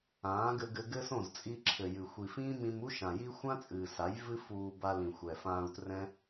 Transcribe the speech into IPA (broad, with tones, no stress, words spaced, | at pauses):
ãː˨˦ɡɘ˧ɡɘ˧ɡɘ˦ sõ˦˨zt͡sʼi˧ǁʰɘ˨jɨ˨ xʷi˨fĩː˦mĩ˧m u˦ʃã˨ji˦ xʷã˦t͡sʼɨː˨sa˨˦j vɨ˦fuː˧ba˧lĩ˨ xʷɛ˨fãː˧u̯trɛ̃˦